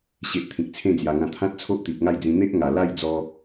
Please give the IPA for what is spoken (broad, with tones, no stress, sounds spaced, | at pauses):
ɕ e˨ ʔ t̪ʰ ĩ˨ k̚ t͡sʰ ẽ˥˧ d͡z j a˨˩ ŋ ã˧ t̪ʰ ã˦ t̚ t͡sʰ o˦ ʔ t̪ i˨ p̚ ŋ a˥˧ j d͡z ĩ˧ n̪ e˦ ʔ ŋ a˨˩ l a˥˧ j d͡z ɔ˧